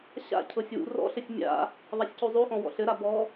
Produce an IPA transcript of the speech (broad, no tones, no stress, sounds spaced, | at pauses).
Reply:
ɕ a̰ cʰ ɤ sʲ w ṵ r ɔ̰ ɬ ɘ sʲ mʲ a̰ | ðˤ a sʲ c u zˤ u x ɔ̃ w ɔ̰ ɬ ɘ ɾ a b ɔ